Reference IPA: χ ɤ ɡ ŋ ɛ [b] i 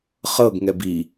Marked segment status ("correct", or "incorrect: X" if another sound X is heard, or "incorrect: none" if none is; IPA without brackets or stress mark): correct